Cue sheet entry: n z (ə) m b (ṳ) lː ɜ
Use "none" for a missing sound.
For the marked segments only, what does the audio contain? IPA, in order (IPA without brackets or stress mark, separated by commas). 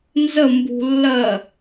ə, ṳ